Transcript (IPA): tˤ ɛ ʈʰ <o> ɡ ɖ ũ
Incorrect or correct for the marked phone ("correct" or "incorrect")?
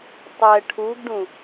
incorrect